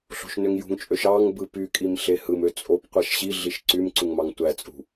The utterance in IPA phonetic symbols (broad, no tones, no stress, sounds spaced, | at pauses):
ɬ o̤ ʃ n ø ŋ j ṳ ŋ t͡ʃʼ ø ʃ ɑ ŋ b ɯ p y kʼ i m ɬ e h ɯ m ø t͡sʼ o p qʷ æ ʃ ɕ i ɮ i ʃ ǀ y m ǀ u ŋ m ɑ ŋ tʷ æ t͡sʼ ṳ